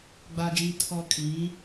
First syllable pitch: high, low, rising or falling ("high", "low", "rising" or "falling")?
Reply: low